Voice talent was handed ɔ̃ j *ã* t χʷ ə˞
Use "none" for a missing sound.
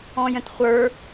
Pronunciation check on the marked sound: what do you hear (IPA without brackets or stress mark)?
ə̃